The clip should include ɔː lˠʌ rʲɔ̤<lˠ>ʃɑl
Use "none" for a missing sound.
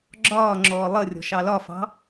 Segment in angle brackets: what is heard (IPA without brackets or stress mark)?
none